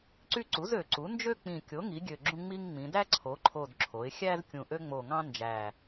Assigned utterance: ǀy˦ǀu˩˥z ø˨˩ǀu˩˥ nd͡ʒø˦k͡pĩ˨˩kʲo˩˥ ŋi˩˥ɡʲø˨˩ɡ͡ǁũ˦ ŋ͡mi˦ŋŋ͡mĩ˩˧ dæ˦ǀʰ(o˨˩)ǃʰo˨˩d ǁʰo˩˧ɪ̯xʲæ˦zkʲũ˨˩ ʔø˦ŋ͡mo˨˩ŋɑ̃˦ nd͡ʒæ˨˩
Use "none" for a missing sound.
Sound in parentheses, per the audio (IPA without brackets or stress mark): o˩˧